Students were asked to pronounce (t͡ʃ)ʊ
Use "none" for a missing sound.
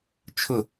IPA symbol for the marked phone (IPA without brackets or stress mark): t͡ʃʰ